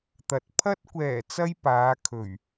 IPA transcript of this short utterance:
t̪ ɐ˨ t̚ pʰ ɐ˥ t̚ kʷ ɛː˨˩ t͡s ɐ˧ j p aː˨˧ kʰ ɵ˨˩ ɥ

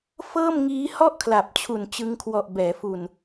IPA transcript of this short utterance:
f ɤː˥˩ m ŋ iː˦˥ h ɔ˥˩ ʔ kʰ l a˨˩ p̚ t͡ɕʰ u˨˩ n t͡ɕ ɯ˧ ŋ kʰ w ɔ˨˩ ʔ b ɛː˩˦ f u˨˩ n

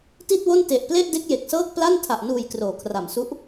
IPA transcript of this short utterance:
t i˥˩ t̚ w o˥˩ n t e˨˩ ʔ p l e˥˩ ʔ d e˦˥ k̚ j e˨˩ k̚ s ɤː˥˩ k̚ p l a˥˩ n tʰ a˨˩ ʔ n uː˨˩ j k r oː˩˦ kʰ r a˨˩ m s u˦˥ ʔ

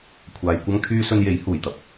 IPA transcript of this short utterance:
kʷʰ aː˧ j kʷ ɐ˥ ŋ kʰ yː˥ s ɵ˧ n j e˨˥ j h uː˨˩ j t̪ ɐ˧ p̚

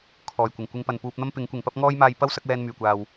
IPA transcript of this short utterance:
kʰ ɔː˨˩ j kʷ ɪ˨˩ ŋ kʷ ɪ˧ ŋ p ɐ˨ n p uː˧ p̚ n̪ ɐ˥ m p ɪ˨˥ ŋ kʷ ɪ˨ ŋ p ɐ˥ p̚ ŋ ɔː˥ j m aː˧ j p ɐ˥ w s ɐ˨˥ k̚ w ɛː˧ n m yː˨˩ kʷ aː˨ w

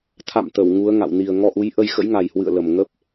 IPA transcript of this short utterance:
t̪ʰ a̰˧˨ m t̪ ə˧˩ w ŋ u˨˦ ə̯ ŋ a̰˧˨ w n i˨˩ ə̯ ŋ ɔ˧ ʔ u˨˦ j ʔ ə˧ j x ə̰˧˥ j ŋ a˨˩ j h w ɨ̰˧˨ ə̯ l ə˨˩ m ŋ ə˦˥ p̚

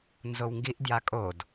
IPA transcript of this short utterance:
n z o w ŋ ɡ i ʔ d j a kʼ o d

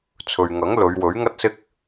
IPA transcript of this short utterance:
t͡sʰ ɵ˨ ɥ ŋ ɐ˨˥ ŋ l ɵ˨˧ ɥ w ɵ˨˥ ɥ ŋ ɐ˥ t̚ s ɪ˥ k̚

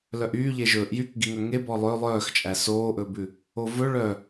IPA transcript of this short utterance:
l œ ʔ yː ʎ e ʒ ɵː ʔ j y k ɡ i ŋ œ ŋ e b ɔ lˠ ø lˠ œː x t͡ʃʼ æ s oː ʔ ɵː b ʉ | o v ɵ ɭ œ

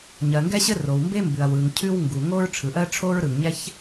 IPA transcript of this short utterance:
ɲ ɜ˩ ŋ ɡ ɛ˥ ɕ ɘ˥ r o˩ w m b e˥ m b ʉ˩ ɐ̯ w ɯ˩ ŋ cʰ ʉ˥ w ŋ ɡ u˩ ŋ o˥ ɹ ʈ͡ʂʰ ɯ˩ ʔ ɜ˥ ʈ͡ʂʰ o˥ ɹ ɾ ɯ˩ ŋ ɲ ɛ˥ ç

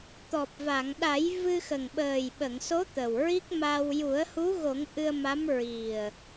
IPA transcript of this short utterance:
t̪ ɔ˨˩ p̚ v a˨˩˨ ŋ ɗ a˨˩˦ j v ɨ˧ x ə˨˩ ŋ ɓ əː˨˩ j ɓ ə˨˩˨ ŋ s o˧˥ t̪ ə˨˩ w ɹ i˦˥ k̚ m a˧ w j u˨˩˦ ə̯ h u˧˥ ɣ o˨˩˦ ŋ ʔ ɨ˧ ə̯ m a˧˥ m ɹ i˨˩ ə̯

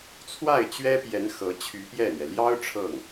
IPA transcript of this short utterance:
t͡sʰ w a˥˩ ɪ̯ t͡ɕ ɥ ɛ˥ p j ɛ˧˥ n x ɤ˧˥ t͡ɕʰ y˧˥ p j ɛ˥˩ n̪ ɥ ɛ˩ l j ɑ˥ ʊ̯ ʈ͡ʂʰ ɤ˥˩ ŋ

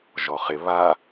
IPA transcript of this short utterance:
ʒ ɔ χ ɪ β a

